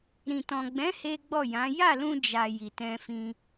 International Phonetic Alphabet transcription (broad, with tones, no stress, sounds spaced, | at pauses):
ɾ ĩ˨ t ɔ̃˨ ɡ͡b ɛ̃˨˦ h e˦ ɡ͡b ɔ˦˨ j ã˨˦ j a˦˨ l ũ˧ d͡ʒ a˨ j i˨ t ɛ̃˧ f ĩ˧